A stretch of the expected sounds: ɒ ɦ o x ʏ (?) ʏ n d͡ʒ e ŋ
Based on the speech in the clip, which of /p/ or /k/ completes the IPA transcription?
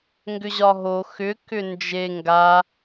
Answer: k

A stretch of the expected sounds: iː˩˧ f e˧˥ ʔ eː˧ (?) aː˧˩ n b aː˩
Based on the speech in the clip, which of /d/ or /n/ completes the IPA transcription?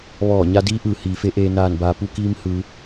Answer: n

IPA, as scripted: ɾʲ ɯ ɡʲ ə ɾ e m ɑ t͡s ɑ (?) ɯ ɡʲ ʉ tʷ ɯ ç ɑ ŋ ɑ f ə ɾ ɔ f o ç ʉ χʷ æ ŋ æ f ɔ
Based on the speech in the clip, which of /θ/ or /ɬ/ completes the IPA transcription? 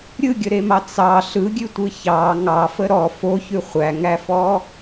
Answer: ɬ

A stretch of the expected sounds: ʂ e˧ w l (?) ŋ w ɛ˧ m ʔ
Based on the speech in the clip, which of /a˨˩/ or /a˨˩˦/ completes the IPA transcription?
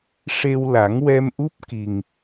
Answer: a˨˩˦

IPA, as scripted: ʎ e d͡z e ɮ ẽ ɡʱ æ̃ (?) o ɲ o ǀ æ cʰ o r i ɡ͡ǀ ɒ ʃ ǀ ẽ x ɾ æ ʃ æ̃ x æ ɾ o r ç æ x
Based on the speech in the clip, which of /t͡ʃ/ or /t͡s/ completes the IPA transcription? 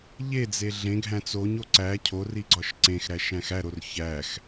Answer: t͡s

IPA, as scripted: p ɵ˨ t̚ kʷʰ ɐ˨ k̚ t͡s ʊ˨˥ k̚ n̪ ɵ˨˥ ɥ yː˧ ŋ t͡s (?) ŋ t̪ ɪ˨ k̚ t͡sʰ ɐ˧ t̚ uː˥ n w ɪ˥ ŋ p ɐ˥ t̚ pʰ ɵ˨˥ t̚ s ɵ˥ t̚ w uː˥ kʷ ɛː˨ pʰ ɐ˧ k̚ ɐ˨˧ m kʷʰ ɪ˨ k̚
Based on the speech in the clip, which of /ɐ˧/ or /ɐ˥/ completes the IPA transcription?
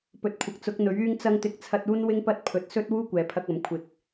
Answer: ɐ˧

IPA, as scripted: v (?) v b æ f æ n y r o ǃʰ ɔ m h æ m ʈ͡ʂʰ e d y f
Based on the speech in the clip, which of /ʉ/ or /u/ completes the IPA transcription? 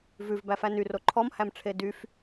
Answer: ʉ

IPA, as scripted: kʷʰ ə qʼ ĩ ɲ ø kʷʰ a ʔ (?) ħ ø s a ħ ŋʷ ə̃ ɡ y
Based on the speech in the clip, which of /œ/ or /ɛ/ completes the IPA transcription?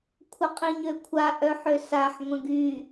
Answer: œ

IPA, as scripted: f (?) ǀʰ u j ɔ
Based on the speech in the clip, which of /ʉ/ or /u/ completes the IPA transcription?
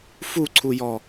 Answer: u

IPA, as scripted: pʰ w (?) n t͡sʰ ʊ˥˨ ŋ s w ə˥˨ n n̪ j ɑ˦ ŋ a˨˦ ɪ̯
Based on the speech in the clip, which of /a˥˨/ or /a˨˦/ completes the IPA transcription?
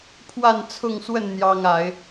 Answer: a˥˨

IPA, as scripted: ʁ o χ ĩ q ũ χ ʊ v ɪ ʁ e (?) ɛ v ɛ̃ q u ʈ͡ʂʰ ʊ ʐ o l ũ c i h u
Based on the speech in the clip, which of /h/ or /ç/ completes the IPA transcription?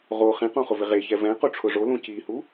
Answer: ç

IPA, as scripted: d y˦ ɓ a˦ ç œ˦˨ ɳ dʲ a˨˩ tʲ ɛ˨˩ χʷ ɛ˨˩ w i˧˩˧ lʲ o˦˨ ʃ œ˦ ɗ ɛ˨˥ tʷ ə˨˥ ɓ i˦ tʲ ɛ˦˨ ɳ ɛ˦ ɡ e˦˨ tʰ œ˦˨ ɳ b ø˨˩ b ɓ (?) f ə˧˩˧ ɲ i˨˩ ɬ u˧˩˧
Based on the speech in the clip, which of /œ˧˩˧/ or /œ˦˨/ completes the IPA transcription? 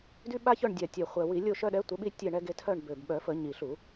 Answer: œ˧˩˧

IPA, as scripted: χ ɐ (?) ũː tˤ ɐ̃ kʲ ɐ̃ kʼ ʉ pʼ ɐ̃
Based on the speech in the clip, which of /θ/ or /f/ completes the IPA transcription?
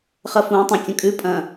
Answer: f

